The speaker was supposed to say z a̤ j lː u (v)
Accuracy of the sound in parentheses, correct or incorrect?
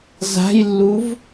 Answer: correct